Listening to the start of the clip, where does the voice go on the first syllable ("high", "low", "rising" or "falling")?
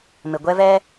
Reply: low